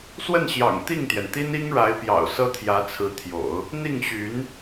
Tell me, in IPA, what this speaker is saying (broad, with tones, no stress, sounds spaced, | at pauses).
s w ə˥˩ n ɕ j ɑ̰˨˩ ŋ t̪ i˥˩ ŋ t̪ j ɛ˩ n t̪ i˥ n i˥ ŋ ɻ a˧˥ ɪ̯ p j ɑ̰˨˩ ʊ̯ s ɤ˥ t̪ʰ j ä˧˥ t͡sʰ ɹ̩˧˥ t̪ʰ j o̰˨˩˦ ʊ̯ | n̪ i˥˩ ŋ ɕ y˧˥ n